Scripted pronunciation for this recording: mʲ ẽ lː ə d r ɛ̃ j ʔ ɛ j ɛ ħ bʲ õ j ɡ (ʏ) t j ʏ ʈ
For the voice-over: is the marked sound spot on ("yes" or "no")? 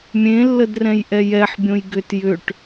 yes